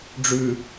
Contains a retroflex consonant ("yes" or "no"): yes